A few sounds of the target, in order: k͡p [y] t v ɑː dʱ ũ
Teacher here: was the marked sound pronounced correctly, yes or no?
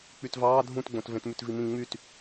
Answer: yes